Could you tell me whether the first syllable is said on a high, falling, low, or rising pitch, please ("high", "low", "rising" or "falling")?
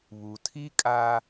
low